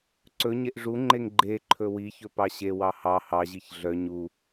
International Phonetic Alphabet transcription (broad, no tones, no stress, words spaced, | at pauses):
ǀɵɲeʔ ʐuŋ͡ǃeŋ ɡ͡ǃe ǃʰɵwiçɵ pɑɕewɑ hɑ hɑʑiç ɮœ ɲu